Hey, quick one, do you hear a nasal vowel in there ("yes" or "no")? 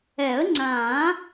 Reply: yes